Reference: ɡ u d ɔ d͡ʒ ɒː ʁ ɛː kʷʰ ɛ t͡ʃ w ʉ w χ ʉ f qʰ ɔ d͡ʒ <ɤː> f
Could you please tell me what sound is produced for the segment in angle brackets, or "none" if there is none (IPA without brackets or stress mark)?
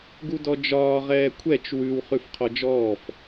ɔː